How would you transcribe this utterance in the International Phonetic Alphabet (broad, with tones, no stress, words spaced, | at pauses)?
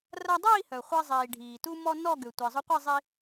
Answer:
rɐ˧dˤiː˥˧hœ˩ χʷɛ˧zˤiː˩ ɖʱiː˩tu˧mɔ˧ nɔ˥˧ɡʏ˩ tʷi˩zˤʊ˧qʷɛ˥˧zˤi˧